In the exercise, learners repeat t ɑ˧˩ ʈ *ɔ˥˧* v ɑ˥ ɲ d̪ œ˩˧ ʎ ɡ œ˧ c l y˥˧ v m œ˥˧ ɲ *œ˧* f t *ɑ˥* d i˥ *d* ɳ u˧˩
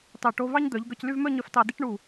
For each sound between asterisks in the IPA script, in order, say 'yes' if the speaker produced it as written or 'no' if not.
no, yes, no, no

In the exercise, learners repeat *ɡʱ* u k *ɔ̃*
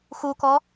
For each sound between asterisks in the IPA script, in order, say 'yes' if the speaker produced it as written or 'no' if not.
no, no

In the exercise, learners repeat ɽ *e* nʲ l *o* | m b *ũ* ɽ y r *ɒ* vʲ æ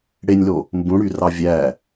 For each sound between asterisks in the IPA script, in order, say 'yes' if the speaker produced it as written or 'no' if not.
yes, yes, yes, no

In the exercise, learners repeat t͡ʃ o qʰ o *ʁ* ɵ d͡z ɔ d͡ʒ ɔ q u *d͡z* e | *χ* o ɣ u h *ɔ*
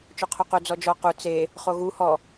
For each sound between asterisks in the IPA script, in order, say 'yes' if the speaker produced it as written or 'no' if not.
no, no, yes, yes

